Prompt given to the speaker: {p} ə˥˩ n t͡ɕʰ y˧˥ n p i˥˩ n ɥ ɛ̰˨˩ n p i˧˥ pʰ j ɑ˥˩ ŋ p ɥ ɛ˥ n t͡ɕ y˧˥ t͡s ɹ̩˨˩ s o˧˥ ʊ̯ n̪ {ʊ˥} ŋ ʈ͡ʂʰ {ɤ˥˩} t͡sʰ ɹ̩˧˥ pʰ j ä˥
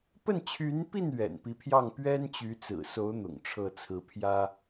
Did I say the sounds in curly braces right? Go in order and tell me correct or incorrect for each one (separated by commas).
correct, incorrect, correct